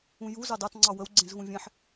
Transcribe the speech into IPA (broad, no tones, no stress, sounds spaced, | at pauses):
ũ j u z ɑ d ɑ t ŋ͡ǀ ɑ w ə w ɡ͡ǀ ẽ z ɣ ũ vʲ ẽ ħ